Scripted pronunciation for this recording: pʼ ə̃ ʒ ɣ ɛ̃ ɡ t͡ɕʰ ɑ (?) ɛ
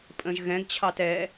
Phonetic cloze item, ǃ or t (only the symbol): t